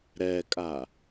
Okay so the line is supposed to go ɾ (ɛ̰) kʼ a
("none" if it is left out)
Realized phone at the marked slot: ɛ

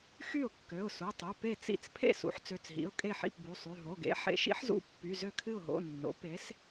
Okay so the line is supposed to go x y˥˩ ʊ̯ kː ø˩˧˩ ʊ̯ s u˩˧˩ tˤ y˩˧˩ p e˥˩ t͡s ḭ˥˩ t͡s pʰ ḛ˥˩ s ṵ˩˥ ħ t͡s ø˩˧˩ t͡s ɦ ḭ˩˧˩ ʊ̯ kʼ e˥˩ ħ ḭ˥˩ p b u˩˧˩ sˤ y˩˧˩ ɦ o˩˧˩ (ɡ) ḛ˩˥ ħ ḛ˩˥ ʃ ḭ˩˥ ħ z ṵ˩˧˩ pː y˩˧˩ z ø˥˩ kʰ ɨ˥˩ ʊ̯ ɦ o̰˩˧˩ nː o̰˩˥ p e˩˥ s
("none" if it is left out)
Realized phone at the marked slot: ɡ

